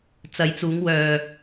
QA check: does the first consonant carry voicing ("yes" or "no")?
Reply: no